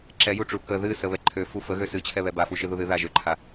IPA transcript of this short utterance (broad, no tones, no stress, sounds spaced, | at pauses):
ǁ ɛ j u ʈ͡ʂ u k ə ð ɨ s ə β ɛ ǃʰ ø f u f ə ɣ ø s ɨ t͡ɕʰ ɛ β ɛ b a f u ʃ ɨ ð u ð ɨ ð a ʒ ø ǃʰ a